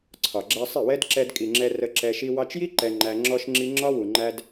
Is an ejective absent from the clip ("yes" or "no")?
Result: no